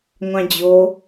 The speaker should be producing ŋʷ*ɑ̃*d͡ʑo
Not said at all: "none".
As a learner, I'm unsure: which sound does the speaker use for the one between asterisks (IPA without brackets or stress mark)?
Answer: ɑ̃